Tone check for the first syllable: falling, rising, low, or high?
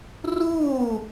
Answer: falling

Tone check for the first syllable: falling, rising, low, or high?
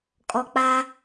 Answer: low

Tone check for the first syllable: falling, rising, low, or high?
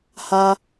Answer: high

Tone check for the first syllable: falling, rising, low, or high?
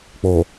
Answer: low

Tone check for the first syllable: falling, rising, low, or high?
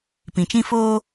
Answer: low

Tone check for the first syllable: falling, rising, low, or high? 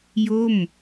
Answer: falling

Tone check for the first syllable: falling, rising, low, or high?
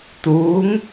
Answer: rising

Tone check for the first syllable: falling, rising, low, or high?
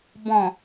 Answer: low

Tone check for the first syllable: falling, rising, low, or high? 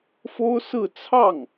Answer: high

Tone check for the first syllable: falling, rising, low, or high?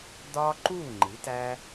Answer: high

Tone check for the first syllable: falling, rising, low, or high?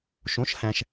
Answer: rising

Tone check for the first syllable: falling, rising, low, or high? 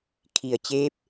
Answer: low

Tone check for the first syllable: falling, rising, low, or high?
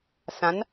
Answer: rising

